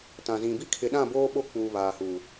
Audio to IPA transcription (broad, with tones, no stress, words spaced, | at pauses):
tã˨zĩ˨bi˦ kʰɪ˨ɗã˦˨boː˦ ɓo˦ k͡puː˨βaː˨ huː˨